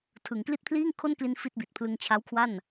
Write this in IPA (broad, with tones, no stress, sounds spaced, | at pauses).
tʰ ɯ˩˦ ŋ k l i˥˩ t̚ pʰ l iː˥˩ ŋ kʰ o˥˩ n k l i˧ n f i˥˩ t̚ b i˨˩ t̚ pʰ l ɯ˧ ŋ t͡ɕʰ a˦˥ w kʰ w a˥˩ n